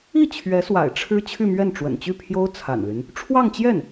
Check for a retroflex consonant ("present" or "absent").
present